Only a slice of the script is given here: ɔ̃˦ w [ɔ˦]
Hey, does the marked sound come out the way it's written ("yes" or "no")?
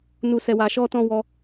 no